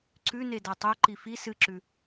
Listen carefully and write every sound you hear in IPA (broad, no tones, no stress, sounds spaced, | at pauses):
ǀ ʉ n e d a tˤ o ǃ i f i s ɨ ǁ ʉ